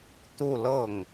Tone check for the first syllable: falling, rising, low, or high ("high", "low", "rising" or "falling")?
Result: falling